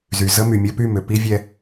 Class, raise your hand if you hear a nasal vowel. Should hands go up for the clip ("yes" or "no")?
no